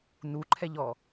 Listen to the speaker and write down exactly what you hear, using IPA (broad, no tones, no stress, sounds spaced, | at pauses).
n u ǃʰ ɛ ʎ ɔ